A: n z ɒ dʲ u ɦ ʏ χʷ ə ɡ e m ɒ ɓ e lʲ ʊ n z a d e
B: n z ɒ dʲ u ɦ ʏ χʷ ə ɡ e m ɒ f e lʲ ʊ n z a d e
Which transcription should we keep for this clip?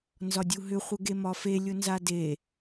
B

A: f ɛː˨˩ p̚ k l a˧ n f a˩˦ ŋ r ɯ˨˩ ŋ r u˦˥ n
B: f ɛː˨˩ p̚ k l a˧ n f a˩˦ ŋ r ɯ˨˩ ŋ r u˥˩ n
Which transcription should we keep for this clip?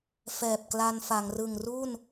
B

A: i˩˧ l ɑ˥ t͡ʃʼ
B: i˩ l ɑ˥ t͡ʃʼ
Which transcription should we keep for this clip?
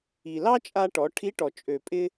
B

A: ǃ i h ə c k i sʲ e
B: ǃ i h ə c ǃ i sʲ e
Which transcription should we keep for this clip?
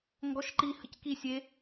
A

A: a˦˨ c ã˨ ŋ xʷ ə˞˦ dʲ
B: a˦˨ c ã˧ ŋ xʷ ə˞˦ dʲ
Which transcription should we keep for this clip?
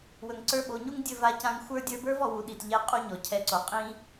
B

